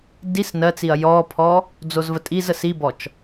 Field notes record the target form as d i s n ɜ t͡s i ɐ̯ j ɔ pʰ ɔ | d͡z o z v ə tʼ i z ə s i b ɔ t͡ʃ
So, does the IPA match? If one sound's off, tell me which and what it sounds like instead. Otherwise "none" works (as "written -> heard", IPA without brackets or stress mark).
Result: none